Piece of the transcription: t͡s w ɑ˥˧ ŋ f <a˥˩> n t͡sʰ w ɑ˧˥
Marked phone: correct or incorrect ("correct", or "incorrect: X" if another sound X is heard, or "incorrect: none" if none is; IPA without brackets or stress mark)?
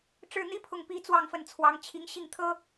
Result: incorrect: ə˥˩